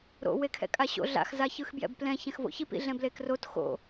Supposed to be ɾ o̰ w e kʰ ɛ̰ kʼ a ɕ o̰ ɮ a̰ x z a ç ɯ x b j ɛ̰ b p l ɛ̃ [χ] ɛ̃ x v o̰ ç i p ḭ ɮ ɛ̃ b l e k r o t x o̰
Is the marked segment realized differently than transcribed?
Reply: yes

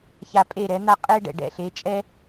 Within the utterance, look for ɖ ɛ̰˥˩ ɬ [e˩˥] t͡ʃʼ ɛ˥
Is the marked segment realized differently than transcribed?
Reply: no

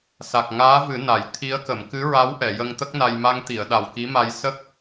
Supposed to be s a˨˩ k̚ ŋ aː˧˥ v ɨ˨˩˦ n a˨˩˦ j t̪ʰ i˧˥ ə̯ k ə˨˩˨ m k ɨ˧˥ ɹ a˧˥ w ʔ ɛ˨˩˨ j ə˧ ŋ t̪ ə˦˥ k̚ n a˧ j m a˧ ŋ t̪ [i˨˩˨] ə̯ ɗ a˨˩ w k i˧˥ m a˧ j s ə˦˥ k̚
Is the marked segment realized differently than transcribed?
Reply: no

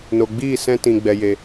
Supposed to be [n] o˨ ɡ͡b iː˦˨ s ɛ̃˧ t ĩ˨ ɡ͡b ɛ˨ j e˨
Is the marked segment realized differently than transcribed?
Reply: no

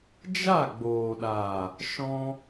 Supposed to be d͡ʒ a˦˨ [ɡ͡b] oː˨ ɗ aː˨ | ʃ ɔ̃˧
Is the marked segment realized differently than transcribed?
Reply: no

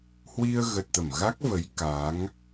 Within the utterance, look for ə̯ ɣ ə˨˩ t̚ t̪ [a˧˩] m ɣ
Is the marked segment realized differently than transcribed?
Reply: yes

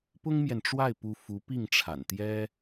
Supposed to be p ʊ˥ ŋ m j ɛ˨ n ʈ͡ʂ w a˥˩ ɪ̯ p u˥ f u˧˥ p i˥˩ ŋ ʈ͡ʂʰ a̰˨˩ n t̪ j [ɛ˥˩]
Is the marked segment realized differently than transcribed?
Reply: yes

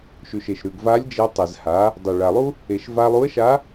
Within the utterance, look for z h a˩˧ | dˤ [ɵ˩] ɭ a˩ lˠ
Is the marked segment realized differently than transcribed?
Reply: no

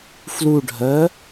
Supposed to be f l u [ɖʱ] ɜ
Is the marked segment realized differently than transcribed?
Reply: no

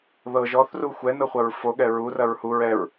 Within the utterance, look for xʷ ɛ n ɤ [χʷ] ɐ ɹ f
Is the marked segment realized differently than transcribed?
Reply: no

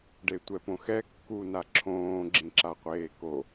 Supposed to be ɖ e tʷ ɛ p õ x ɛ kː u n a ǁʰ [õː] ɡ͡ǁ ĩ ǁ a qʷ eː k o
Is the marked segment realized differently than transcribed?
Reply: no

